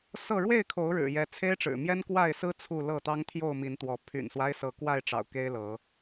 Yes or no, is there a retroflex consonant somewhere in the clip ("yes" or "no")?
yes